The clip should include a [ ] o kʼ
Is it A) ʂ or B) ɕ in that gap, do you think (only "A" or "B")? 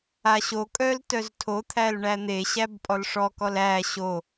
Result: B